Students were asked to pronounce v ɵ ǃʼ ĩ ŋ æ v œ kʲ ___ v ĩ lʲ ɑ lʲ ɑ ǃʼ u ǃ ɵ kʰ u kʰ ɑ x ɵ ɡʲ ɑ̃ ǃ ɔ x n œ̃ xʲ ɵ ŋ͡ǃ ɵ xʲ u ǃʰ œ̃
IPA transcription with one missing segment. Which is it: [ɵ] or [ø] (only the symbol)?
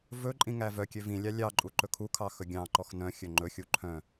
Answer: ø